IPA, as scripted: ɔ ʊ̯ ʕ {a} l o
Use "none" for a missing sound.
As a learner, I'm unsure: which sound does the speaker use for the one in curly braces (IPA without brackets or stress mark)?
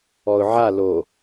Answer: a